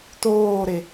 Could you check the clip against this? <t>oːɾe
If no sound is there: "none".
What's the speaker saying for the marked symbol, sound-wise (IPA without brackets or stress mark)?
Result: t